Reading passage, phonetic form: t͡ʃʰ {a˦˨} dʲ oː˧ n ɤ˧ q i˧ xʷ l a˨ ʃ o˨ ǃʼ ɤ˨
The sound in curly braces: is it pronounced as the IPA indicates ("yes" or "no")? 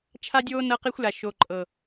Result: no